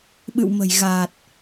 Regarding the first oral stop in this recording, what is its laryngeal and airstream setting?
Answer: implosive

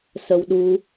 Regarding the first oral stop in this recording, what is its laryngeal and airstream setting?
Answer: implosive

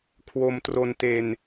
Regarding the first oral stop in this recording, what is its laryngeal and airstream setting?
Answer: aspirated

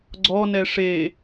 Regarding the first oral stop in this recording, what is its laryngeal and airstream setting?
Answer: click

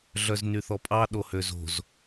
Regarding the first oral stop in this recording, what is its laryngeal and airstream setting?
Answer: ejective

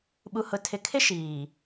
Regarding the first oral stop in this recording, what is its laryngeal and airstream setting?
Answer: implosive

